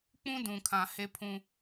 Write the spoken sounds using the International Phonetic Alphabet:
k͡pũ˦ dũ˨kʰã˨ he˦pʰũ˦

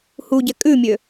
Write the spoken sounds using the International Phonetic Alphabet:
huɟɛ kʼʉmʲø

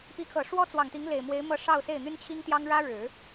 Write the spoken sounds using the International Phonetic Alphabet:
pi˧˥kʰɤ˨˩ʂwɔ˥ t͡swɑ˨˩ŋt̪i˧˥ŋle˨˩ɪ̯mwe˧˥ɪ̯ mɤ˥˧ʂɑ˥˧ʊ̯se˥˩ɪ̯ n̪y˥nt͡ɕʰi˥ŋt̪jɑ˥ŋ ɻä˥ɻɻ̩˨˩˦

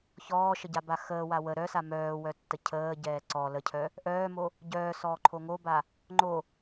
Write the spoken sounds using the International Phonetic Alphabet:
çɔːʃəɟaba xəːwa wə ɾœsa mœːwœtːə cʰəːɟɛː ǀɔ ləcʰœ | ʔœːmo | ɟœːsɔːǃʰo ŋoba | ŋ͡ǃo

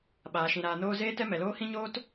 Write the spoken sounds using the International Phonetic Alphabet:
ɓaː˨ʃĩ˨ɾaː˨noː˧ zeː˦tɛ˦mɛ˨loː˦ hĩ˦ɲoː˦t

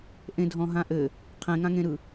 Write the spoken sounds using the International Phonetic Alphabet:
ʔẽdʱɔ̃ɦãʔɘ | qʰẽŋãŋẽɾɯ

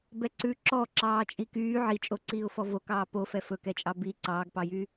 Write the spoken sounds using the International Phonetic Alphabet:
bɛǀʉ ǁɔ ǁɑːt͡ʃʼikyː ʕit͡ʃʼoǀiːʊ̯fɔ vokɑː pofɛ fɵkɛt͡ʃʼɑ bi ǀɑːɡpɑjy

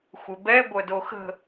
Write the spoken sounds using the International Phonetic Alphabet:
xʷɪbɛ ɡʷœdoxə̤

